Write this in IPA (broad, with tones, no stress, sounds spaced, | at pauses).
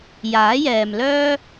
j aː˨˥ j ɛː˨ m l œː˥